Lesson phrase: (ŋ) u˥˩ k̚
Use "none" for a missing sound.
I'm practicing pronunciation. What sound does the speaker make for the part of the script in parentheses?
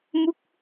m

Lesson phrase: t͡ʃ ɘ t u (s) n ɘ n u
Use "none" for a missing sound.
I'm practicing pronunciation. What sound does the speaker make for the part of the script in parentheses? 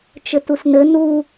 s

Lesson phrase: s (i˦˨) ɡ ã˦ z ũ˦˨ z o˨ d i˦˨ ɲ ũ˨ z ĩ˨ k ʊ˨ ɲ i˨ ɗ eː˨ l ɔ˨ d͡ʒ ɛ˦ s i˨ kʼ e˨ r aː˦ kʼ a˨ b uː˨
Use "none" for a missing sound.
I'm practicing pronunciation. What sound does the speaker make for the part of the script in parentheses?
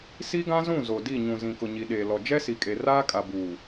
i˦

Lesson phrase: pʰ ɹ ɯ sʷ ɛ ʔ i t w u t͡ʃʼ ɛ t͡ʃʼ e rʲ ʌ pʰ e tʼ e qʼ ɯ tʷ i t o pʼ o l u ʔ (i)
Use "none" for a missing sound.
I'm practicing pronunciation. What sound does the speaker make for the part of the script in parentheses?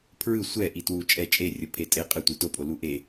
e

